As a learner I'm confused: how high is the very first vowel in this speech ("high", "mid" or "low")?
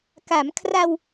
low